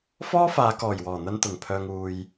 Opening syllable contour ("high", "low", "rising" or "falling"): high